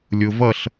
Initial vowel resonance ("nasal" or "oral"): oral